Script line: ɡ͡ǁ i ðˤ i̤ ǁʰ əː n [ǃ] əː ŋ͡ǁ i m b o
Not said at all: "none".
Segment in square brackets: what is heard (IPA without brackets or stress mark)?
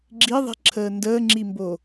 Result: d